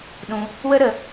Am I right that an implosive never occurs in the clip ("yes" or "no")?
no